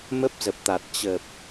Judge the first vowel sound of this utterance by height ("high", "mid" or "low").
mid